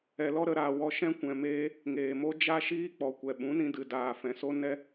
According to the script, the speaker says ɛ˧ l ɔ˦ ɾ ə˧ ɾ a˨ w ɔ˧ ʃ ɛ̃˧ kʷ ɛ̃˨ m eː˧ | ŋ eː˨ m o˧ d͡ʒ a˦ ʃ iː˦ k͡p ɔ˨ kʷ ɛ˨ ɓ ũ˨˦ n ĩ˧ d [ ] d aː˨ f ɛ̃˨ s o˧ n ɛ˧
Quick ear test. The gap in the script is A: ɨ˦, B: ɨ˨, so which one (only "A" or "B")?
B